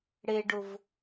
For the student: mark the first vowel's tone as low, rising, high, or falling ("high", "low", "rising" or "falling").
high